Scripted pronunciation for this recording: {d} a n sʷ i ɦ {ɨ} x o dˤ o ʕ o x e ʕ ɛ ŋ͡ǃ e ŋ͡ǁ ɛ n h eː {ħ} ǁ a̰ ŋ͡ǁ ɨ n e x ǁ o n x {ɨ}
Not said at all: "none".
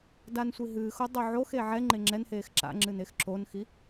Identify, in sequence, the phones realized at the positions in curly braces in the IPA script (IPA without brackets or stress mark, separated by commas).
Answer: d, ɨː, x, i